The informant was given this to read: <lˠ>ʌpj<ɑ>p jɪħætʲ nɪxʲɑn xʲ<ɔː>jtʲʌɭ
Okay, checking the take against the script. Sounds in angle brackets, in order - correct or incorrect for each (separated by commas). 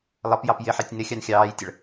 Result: correct, correct, incorrect